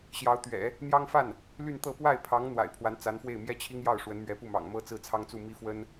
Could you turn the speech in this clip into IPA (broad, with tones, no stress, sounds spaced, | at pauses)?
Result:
ɕ j ɑ˧˥ ʊ̯ t̪ ɥ ɛ̰˨˩˦ | n̪ j ɑ˥ ŋ f a˥˩ n | l y˥˧ n t̪ ɤ˥˧ p w a˥˩ ɪ̯ pʰ ɑ˧˥ ŋ n̪ w a̰˨˩ ɪ̯ pʰ w a˧˥ n t͡s a˧˥ n f w e˥˩ ɪ̯ m j ɛ˥ t͡ɕʰ i˥ ŋ j ɑ˥˩ ʊ̯ ʂ w ə˧˥ n m ɥ ɛ˧˥ p u˥˩ m ɑ̰˨˩ ŋ m ɤ˥ t͡s ɹ̩˥˩ t͡sʰ ɑ˥ ŋ t͡s u˥˩ m i˥ f w ə˥ n